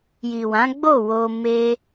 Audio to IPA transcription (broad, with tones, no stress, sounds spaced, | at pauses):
j i˨ w ã˨˦ ɡ͡b o˦˨ w o˧ m e˦